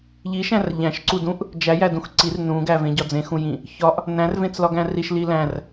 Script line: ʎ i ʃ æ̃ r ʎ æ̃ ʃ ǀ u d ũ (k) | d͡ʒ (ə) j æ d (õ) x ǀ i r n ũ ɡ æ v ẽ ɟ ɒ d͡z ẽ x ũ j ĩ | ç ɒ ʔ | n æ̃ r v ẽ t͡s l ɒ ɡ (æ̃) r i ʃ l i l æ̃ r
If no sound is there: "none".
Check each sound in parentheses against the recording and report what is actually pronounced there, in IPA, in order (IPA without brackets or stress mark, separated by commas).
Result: ʔ, æ, ũ, æ̃